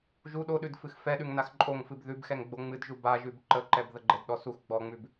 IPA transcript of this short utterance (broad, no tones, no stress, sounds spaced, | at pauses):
ʒ u ɗ o ɗ ʉ d f ɨ x f ɛ ɗ ʉ ŋ n a x ǃʼ o ŋ f ɨ b ð ʉ b x ɛ ŋ ɡ͡b o ŋ͡m ɨ d ʒ u b a ʒ ʉ b ǃ ə ǃ ɛ b ð ə ɡ͡ǃ ɛ d ɗ ɔ s u x ɡ͡b ɔ ŋ͡m ʉ b